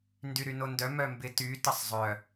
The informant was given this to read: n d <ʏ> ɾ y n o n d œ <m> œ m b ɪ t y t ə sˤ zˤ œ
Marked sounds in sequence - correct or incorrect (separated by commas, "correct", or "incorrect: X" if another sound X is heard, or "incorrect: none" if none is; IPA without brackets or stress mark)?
incorrect: y, correct